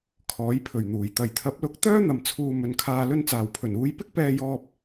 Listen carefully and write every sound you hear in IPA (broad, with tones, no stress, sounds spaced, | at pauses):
kʰ ɔː˨˥ j pʰ ɵ˨˩ ɥ n̪ uː˨˩ j t̪ ɐ˨˩ j t̪ʰ ɐ˨˥ p̚ l ʊ˨˥ k̚ t̪ œː˥ n̪ ɐ˨ m t͡sʰ uː˨ m ɵ˨ n kʰ aː˨ l ɵ˧ n t͡s aː˨˩ w pʰ ɵ˨˩ n uː˧ j p ɪ˥ k̚ p ɛː˧ j ɔː˧ p̚